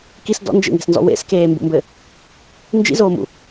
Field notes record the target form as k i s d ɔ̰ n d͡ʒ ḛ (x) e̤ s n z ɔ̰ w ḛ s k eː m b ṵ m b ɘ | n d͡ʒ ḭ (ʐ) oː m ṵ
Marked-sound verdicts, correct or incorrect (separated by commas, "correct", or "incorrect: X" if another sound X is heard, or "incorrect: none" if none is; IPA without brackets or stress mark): incorrect: ŋ, incorrect: z